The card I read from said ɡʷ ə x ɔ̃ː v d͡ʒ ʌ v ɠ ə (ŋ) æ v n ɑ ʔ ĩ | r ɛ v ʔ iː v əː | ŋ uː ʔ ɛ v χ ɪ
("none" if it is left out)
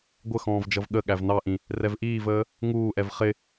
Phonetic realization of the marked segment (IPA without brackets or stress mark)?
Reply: ɠ